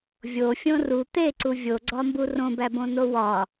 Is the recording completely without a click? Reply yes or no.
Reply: no